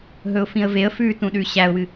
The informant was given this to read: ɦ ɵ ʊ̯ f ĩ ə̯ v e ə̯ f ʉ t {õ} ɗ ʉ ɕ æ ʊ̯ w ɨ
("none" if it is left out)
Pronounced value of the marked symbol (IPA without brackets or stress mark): ũ